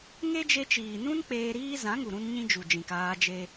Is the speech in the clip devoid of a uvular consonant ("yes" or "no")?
yes